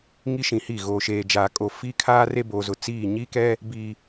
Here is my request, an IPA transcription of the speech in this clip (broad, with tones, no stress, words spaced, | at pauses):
ŋi˦ʃĩ˨hi˦˨ ɣoː˨ʃeː˨ d͡ʒaː˨kʼo˨ fiː˦kʰaː˦ re˦boː˨zʊ˨ t͡siː˦˨ ɲi˦kɛ˦ | bi˨